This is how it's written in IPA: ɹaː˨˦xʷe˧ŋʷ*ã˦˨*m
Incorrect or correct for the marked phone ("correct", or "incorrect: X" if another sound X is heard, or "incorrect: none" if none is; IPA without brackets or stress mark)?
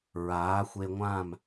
correct